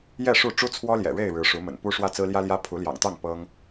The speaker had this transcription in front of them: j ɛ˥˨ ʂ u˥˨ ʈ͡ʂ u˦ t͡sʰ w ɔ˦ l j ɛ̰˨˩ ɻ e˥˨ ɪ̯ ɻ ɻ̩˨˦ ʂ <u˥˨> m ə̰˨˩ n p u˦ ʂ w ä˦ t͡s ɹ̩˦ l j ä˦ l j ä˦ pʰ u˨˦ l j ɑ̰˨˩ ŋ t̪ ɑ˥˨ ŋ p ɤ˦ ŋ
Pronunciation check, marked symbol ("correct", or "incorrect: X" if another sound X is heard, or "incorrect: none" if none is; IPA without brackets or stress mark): incorrect: u˨˦